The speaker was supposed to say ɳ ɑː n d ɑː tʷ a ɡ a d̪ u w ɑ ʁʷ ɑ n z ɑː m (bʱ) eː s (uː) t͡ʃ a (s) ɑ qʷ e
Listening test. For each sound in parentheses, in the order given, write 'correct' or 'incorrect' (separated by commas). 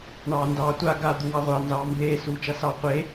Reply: incorrect, correct, correct